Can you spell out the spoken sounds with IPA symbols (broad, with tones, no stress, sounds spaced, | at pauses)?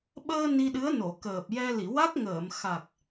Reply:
ɓ əː˧ n i˧ ɗ ɨ˧˥ ə̯ n o˨˩˨ k əː˨˩ p̚ j ɛ˧ l i˨˩˨ w a˦˥ k̚ ŋ əː˨˩˨ m x a˨˩ k̚